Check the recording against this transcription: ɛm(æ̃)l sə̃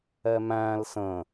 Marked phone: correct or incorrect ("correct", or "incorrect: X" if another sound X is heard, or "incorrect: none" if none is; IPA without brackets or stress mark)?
correct